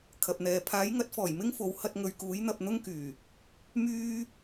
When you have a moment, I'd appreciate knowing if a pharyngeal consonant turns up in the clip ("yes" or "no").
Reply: no